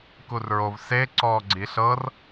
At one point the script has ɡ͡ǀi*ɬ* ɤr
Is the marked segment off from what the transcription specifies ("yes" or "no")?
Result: no